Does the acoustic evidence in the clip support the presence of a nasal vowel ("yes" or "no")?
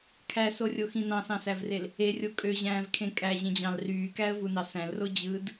yes